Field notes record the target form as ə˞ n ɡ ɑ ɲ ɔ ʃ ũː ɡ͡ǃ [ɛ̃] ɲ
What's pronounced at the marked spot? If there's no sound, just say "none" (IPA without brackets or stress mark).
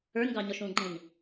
ɛ̃